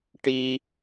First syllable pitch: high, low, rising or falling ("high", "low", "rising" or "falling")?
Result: high